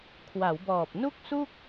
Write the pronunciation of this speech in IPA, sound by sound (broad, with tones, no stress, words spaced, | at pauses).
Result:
kʰwa˩˦wbɔː˨˩p̚ nu˥˩k̚su˥˩k̚